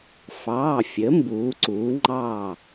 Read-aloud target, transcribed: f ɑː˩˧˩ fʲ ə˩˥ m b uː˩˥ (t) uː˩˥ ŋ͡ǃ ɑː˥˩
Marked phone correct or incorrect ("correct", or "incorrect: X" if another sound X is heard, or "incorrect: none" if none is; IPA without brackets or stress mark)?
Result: incorrect: ǀ